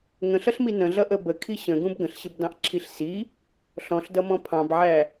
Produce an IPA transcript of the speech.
ŋ ə̃ ɬ ʌ ɬ m i n ə̃ ɮ ʌ ʔ ə b ə kʰ i ɕ ə̃ ɡ ũ b ɡ ə̃ ɬ ɕ ɪ b d ɑ̃ ʔ ǁʰ i ɬ s i | ɬ ɔ̃ ɬ d ʌ m ɔ̃ pʰ ɑ̃ b ʕ æ

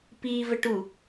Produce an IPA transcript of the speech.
p i v ə ʈ u

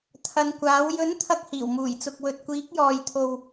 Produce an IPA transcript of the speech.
t̪ʰ ɐ˨˧ n kʷ aː˨˥ w j ɵ˨˥ n t̪ʰ ɐ˧ k̚ h iː˨˩ w m uː˨˩ j t͡s ʊ˨ k̚ w ɵ˨ t̚ kʷ iː˨˥ k̚ j ɔː˨ j t̪ʰ o˨ w

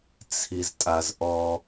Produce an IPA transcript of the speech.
t͡sʰ i z tʼ a z ʔ ɔ

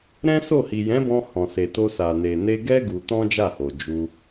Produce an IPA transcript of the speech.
ɾ ɛ̃˦ s o˦˨ h i˨ j ɛ̃˨˦ b ɔ̃˧ h ɔ̃˨ s e˨ t o˧ s a˨ n e˨ n e˧ ɡ ɛ˦ ɡ u˧ t ɔ̃˦ d͡ʒ a˦˨ h o˨ d͡ʒ u˧

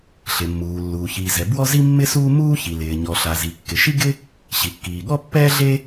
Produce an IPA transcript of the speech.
ɬ ɪ˩ mː uː˩ lː uː˩ ç iː˩ z ɛ˩ b w ɔ˥ z i˥ mː ɪ˥ s uː˥ m uː˥ ç i˩ l ɪː˩ ɲ ɔ˩ ɬ a˩ z i˩ kː ɪ˩ ʃ i˥ ɡ ɪ˥ | ɕ i˩ kː iː˩ ɠ ɔ˥ pː ɛː˥ ɮ e˥

